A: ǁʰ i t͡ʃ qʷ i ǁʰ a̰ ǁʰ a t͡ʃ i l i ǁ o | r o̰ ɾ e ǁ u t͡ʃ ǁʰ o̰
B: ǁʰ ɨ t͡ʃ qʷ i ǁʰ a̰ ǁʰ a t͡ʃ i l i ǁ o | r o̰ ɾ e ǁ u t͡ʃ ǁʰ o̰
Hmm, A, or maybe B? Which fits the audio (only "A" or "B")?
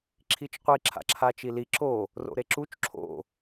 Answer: A